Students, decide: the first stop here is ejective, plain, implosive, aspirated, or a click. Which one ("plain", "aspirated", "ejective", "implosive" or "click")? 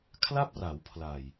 aspirated